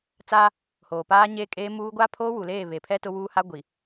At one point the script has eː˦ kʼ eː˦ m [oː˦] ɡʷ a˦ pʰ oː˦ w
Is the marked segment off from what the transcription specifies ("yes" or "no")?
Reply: yes